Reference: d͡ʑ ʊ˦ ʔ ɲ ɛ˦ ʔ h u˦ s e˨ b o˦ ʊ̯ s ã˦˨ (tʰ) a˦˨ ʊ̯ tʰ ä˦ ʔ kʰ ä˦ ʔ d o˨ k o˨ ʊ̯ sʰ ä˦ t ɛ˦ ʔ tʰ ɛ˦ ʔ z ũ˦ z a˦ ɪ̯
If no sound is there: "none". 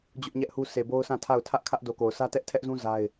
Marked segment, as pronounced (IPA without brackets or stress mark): tʰ